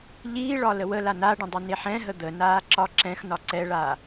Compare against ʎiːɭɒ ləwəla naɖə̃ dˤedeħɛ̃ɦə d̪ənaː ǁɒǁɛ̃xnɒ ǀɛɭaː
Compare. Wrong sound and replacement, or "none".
d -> n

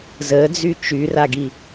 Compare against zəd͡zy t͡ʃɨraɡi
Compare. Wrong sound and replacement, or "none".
ɨ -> y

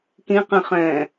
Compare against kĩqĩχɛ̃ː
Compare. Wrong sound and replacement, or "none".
none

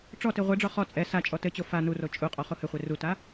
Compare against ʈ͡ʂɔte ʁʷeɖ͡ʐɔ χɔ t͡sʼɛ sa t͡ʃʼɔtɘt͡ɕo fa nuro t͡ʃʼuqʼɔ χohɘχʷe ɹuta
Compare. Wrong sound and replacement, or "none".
ɹ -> r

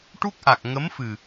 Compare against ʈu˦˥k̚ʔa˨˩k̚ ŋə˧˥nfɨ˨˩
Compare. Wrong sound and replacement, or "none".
n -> m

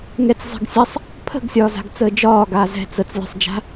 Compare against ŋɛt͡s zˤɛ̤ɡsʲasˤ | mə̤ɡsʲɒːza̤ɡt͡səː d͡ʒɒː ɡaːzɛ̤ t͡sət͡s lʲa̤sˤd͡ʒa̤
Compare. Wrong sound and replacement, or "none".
m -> pʰ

